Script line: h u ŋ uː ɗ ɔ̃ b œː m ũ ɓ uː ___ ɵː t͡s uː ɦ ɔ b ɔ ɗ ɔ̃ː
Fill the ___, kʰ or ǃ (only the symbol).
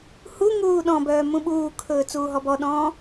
kʰ